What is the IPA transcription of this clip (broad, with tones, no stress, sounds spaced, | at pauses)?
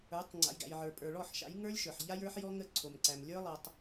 ə˞˨˦ tˤ ŋ͡ǀ a̰˨ j ɡ æ̰˨ j ʕ ə˞˨ pʼ ə˞˨ ɭ ɔ˦˨ ħ ʃ a̰˨˦ j ŋ ə˞˦ lʲ ʃ ə˞˨ ħ ʎ a˦ j ə˞˦ ħ j ɔ˦ ŋ ə˦˨ ǀʰ o˨ m ǀ æ˨ m lʲ ə˞˦ lˠ a˨ tˤ